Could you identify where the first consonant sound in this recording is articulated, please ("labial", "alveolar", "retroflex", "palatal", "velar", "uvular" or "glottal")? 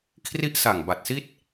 velar